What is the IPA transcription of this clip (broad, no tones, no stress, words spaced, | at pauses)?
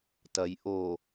tɐj ʔo